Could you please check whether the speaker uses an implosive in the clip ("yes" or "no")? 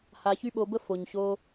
yes